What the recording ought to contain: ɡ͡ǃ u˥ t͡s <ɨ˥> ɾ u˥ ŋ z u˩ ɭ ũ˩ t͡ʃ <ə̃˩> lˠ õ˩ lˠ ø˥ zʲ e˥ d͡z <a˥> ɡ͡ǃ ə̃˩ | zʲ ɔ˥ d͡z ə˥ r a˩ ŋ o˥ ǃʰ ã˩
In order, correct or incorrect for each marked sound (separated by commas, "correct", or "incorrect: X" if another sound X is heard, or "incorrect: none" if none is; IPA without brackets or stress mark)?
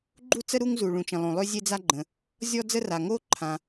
incorrect: ə˥, correct, correct